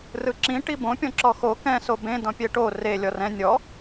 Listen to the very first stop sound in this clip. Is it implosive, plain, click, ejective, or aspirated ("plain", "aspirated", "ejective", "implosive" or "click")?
click